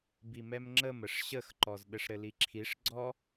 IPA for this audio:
b i m ɛ m ŋ͡ǁ ə m ə ʂ ɕ ə x ǃ ɔ z ɗ ɘ ʂ ɾ ɘ l i ǁʰ i ʂ ɡ͡ǀ ɔ

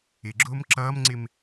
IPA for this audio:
ɪ ɡ͡ǁ ʊː m ǁ ʌː m ŋ͡ǀ ɪ m

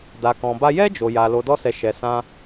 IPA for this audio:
d a˧ k ɔ̃˧ b a˦ j ɛ˦ d͡ʒ o˧ j a˧ l o˧ d ɔ˦ s ɛ˧ ʃ ɛ˧ s ã˦

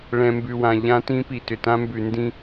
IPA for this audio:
ɭ ɛ̃˨ m b ʉ˨ w ã˨ ʎ ã˦ t ĩ˦ p i˨ t ʏ˨ t ã˦ m b ʉ˨ n d ĩ˦

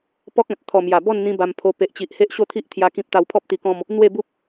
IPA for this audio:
p ɔ˦ k̚ ã˨ t̚ t̪ʰ ɔ˨˩ m j a˨˩ b ɔ˥˧ n n̪ ĩ˦ b a˧ m pʰ o˧ p e˨ ʔ t͡ɕ i˨ ʔ h e˦ ʔ ɕ o˥˧ t̪ʰ i˦ ʔ t̪ʰ j a˦ k ĩ˦ p̚ t̪ a˧ w pʰ ɔ˦ p̚ t̪ i˧ k ɔ̃˥˧ m | n̪ w e˥˧ b u˦ p̚

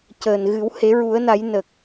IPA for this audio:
c əː˨˩ n ɣ ɨ˨˩˦ w h e˨˩˦ ɹ u˨˩˦ ə̯ n a˨˩˦ j n ə˨˩ k̚

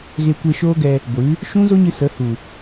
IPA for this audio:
ɣ e˧ kʷ e˧ ʃ oː˦ ɡ ɛ˧ | ɡʷ ɨ˨˦ | ʃ ũ˦ z o˦ ɲ ɨ˧ s ə˨˦ h u˨

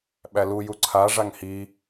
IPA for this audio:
ɓ æ l u j u ǀʰ a ʐ a ŋ h i

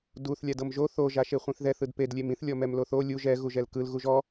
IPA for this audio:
d u θ lʲ a d ɤ m ʒ o θ o ʒ a ʃ e χʷ ĩ θ ð ɛ θ ɯ d p e d lʲ e m ĩ θ lʲ ɔ m ɛ m l o θ o lʲ u ʒ ɛ ɣ u ʒ ɛ l k ɯ l ɣ u ʒ ɔ

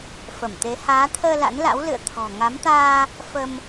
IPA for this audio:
f ə˧˩ m t̪ e˨˦ h aː˨˦ t̪ʰ əː˧ l a̰˧˥ n l a̰˧˥ w l ɨ̰˧˨ ə̯ t̪ʰ ɔ̤˨˩ ŋ a˨˦ m t̪ aː˧ | f ə˧ m

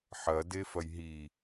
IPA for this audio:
ħ ɐ d e f ɐ j ɦ i

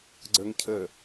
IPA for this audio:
ɡ͡ǀ ə˞ ŋ cʰ ə

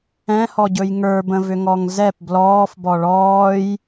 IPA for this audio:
ɛ̃ h ɔ ɟ ɵ j ŋ ə˞ b ə̃ v ʏ ŋ ɔ ŋ z ɛ p b l ɔː f b ɔ ɭ ɔː j

